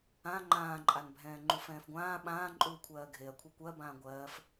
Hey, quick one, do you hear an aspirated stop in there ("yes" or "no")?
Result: yes